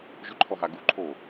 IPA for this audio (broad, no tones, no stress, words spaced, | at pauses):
ʒʏǃʰɔɦa ɡuǃʰoː